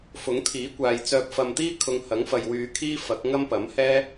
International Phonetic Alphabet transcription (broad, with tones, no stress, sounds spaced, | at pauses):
f ʊ˨˥ ŋ t̪ʰ iː˨˥ kʷ aː˨ j t͡s œː˨ p̚ f ɐ˨ m t̪ iː˥ kʰ ʊ˧ ŋ h ɐ˨˥ ŋ f ɐ˨ j w yː˨˧ kʰ iː˥ f ɐ˨˥ k̚ ŋ ɐ˥ m p ɐ˨˥ m h ɛː˥